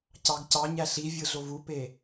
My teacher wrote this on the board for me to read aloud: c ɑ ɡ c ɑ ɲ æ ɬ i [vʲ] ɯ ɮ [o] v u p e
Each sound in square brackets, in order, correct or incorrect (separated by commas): correct, correct